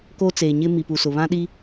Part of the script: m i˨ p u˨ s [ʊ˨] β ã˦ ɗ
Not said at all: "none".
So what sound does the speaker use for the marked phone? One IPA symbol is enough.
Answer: ʊ˨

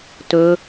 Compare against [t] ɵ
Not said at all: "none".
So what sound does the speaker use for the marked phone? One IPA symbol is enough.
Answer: t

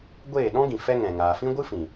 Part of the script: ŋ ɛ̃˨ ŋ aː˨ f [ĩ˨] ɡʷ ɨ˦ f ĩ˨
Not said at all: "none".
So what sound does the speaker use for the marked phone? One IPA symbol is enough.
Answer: ĩ˦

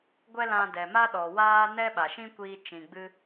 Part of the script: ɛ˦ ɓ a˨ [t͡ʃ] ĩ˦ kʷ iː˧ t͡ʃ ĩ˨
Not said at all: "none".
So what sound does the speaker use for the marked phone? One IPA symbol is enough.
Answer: ʃ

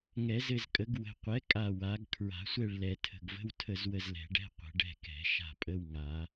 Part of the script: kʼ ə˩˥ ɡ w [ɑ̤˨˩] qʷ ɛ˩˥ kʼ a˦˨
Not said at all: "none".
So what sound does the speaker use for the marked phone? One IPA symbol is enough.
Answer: ə̤˨˩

